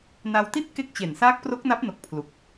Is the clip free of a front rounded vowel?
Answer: yes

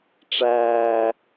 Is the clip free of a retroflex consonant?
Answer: no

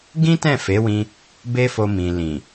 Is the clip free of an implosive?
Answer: yes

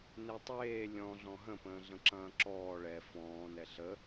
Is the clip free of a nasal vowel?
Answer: no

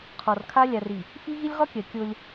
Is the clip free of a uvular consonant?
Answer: no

